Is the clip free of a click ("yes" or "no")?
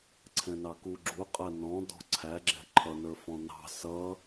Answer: no